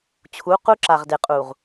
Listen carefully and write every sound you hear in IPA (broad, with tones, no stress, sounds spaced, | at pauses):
t͡ɕʰ u˨˦ q u˦ ǁ a˨ ʁ d e˨ qʼ u˨ ʁ